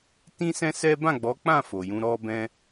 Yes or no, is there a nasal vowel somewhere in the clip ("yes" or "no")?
yes